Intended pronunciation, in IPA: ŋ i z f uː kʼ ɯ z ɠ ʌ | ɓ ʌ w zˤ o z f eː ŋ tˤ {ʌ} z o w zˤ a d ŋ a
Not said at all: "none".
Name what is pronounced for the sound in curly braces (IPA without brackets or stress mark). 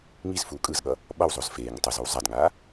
ʌ